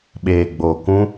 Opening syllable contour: low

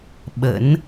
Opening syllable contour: rising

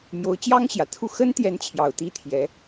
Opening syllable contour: rising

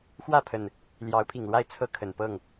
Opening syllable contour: falling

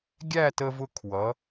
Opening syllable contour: falling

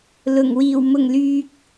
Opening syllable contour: low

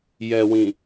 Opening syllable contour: low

